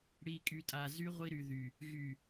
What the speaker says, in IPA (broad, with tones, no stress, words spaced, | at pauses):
ɽi˨kʼy˨tʼa˨ zy˦ ʁʷi˦ɾy˨ðy˨ | ɣy˨